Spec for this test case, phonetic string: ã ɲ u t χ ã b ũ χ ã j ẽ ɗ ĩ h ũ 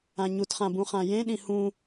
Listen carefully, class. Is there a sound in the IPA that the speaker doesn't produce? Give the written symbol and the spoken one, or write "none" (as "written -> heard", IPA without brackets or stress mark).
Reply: none